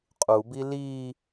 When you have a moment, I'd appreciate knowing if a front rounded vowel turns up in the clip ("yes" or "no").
no